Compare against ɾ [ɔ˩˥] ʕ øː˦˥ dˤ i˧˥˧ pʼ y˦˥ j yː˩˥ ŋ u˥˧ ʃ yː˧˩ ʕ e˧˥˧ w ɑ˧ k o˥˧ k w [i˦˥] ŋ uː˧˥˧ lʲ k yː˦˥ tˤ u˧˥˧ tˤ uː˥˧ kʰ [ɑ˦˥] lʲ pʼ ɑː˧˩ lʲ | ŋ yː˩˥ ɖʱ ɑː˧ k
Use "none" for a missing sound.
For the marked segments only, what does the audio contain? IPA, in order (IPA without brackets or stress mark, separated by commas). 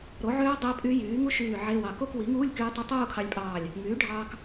o˩˥, i˩˥, ɑ˧